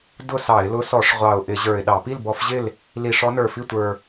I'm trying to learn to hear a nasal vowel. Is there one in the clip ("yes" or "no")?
no